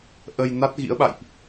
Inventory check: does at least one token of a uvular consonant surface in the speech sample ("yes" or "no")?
no